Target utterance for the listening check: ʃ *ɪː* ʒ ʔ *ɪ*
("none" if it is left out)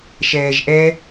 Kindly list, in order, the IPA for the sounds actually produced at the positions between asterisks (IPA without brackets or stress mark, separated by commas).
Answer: ɛː, ɛ